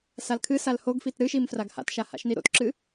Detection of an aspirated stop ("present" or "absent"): present